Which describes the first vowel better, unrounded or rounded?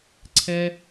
unrounded